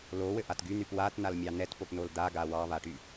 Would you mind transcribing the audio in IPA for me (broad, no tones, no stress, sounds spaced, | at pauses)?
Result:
l o w ɘ ʔ a t ɡ y n̪ y p w a t n a l mʲ ɑ n ɛ t p o p n o l d̪ a ɡ a w ɑ β a ʈ y